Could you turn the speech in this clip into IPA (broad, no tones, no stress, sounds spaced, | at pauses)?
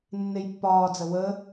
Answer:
nː e j pː ɒː d͡z ə w ə